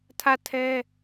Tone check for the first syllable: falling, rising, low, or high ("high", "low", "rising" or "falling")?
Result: falling